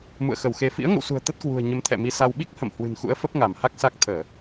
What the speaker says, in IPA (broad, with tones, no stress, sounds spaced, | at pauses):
m ṵ˧˨ ə̯ x ə˧˩ w x e˧ f ḭ˧˥ ə̯ ŋ ə̰˧˨ w s ṳ˨˩ ə̯ t̪ ə˦˥ t̚ k w ṳ˨˩ ə̯ ɲ ə˨˦ m t̪ʰ ɛ̰˧˨ m i˧ s a˧ w ɓ i˦˥ k̚ h ə̰˧˨ m h w ɨ̤˨˩ n x ṵ˧˥ ə̯ f ə˦˥ p̚ ŋ a˧˩ m h a˦˥ k̚ s a˦˥ k̚ t̪ʰ əː˧˩˨